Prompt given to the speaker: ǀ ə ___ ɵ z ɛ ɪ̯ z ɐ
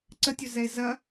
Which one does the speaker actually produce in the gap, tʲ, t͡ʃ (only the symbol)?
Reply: tʲ